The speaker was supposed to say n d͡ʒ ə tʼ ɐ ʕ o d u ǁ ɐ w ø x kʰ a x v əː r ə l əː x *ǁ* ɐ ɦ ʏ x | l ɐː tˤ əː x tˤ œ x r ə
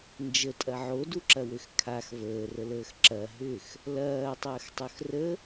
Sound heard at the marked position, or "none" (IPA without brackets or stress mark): ǁ